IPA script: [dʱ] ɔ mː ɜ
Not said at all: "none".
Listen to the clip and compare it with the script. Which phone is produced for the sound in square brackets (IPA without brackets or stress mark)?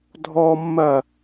dʱ